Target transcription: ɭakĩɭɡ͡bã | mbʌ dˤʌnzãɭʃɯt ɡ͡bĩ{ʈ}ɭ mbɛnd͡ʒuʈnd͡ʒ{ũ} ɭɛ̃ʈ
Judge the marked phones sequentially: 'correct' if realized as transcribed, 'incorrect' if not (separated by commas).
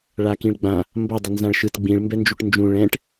incorrect, correct